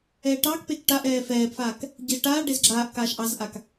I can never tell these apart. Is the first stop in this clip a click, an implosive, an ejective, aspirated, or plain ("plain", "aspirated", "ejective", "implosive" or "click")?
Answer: plain